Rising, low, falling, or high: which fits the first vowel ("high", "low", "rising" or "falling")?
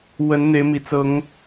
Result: rising